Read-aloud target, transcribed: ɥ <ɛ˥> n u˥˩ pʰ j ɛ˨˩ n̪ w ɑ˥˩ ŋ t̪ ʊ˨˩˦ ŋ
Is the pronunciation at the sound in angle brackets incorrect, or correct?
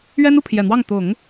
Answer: correct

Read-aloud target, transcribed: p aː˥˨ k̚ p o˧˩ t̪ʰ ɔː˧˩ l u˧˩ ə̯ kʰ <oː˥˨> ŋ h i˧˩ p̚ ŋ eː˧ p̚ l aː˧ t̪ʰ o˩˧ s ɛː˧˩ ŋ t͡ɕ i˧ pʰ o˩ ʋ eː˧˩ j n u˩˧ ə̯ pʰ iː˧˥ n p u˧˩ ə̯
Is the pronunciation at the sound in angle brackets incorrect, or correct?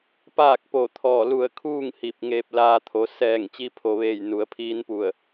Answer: incorrect: uː˥˨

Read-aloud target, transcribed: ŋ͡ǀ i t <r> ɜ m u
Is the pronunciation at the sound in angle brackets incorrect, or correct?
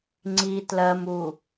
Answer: incorrect: l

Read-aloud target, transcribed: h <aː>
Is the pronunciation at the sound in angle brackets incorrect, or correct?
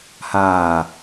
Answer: correct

